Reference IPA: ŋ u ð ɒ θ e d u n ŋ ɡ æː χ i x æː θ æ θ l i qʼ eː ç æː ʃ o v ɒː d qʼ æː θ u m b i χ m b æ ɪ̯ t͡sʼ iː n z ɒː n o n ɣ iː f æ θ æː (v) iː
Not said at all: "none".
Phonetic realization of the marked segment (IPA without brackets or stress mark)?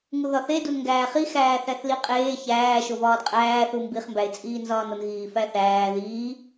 ð